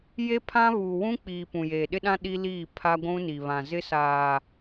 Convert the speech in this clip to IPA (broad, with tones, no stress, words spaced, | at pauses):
je˦pʰã˦βuː˨ wũ˦k͡piː˨ pũ˨jeː˨ɗɪ˦ɗã˦ ɗi˦liː˦˨ pʰa˦ɡʷũ˦ni˨βã˨ zɪ˦saː˨